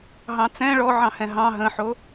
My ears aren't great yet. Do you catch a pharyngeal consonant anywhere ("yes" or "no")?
yes